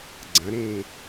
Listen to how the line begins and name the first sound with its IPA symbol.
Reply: ɡ͡ǀ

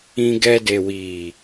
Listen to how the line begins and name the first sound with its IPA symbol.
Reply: ĩ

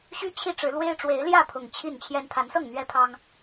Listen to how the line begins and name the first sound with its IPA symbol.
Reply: ɕ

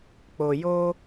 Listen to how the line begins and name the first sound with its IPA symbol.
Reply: k͡p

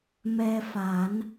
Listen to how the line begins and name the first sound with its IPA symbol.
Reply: m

